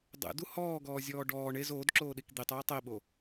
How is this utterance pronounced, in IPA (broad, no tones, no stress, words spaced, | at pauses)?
dˤḛdu hɔːɡɔːzʲɔː ɖɔː ɳez oːdǁoːɗik d̪itˤiː tˤiɓo